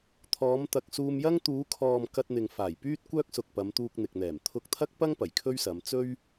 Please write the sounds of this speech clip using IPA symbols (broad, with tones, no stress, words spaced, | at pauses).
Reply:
t̪ʰɔː˨˧mt̪ɐ˨k̚suː˧mjɐ˥ŋ t̪uː˨˧kʰɔː˨m kɐ˧t̚n̪ɪ˨ŋfaː˨˩jpyː˥t̚ kʷœː˥k̚sʊ˨k̚pɐ˨˧m t̪uː˧k̚n̪ɪ˨k̚n̪ɛː˨˩m t̪ʰʊ˧k̚t̪ʰɐ˥k̚pɐ˥ŋ pɐ˨˩jkʰɵ˥ɥsɐ˨˧m t͡sɵ˥ɥ